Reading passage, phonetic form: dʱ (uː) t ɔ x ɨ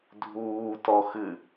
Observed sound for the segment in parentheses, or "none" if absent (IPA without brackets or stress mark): uː